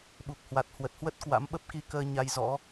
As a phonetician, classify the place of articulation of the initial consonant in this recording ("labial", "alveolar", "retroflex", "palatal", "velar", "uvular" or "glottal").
labial